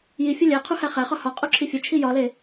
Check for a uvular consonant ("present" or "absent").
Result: present